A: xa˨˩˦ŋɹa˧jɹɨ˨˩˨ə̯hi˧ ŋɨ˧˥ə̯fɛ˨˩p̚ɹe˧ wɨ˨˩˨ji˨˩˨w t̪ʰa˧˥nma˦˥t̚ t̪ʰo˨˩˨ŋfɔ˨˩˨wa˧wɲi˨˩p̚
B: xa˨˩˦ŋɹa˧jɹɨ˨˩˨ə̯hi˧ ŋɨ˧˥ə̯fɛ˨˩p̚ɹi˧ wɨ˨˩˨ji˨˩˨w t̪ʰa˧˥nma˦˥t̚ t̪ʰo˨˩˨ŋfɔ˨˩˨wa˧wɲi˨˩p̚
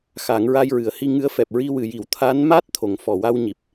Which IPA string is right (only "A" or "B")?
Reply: B